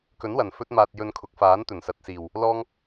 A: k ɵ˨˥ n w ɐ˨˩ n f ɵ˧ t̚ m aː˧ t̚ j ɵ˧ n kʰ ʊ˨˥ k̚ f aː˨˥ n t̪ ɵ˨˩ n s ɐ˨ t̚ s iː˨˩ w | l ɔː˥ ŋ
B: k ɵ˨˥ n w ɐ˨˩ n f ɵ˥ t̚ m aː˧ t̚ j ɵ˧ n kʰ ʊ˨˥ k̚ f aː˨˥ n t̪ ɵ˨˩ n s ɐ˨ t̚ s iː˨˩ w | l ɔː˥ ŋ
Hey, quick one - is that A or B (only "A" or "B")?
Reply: B